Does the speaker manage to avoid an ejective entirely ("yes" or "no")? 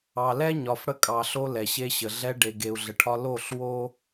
no